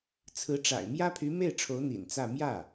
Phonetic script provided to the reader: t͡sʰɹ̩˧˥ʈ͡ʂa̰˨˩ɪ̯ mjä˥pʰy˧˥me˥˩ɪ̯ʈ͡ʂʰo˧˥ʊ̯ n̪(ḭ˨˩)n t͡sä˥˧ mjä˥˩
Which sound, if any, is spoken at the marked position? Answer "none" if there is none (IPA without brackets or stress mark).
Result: ḭ˨˩